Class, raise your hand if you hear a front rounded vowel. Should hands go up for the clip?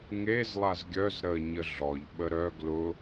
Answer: yes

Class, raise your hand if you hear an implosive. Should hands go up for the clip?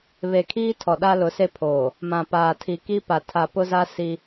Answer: yes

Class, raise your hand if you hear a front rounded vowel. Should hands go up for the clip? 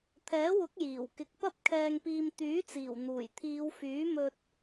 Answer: yes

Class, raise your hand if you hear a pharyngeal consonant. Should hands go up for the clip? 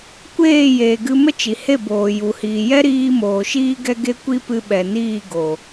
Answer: no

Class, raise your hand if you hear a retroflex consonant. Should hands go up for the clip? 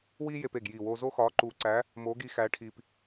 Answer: yes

